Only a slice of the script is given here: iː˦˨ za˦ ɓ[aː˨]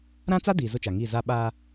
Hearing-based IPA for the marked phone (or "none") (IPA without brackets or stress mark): aː˦